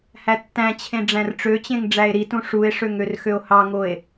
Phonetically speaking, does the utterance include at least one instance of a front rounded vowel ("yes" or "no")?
yes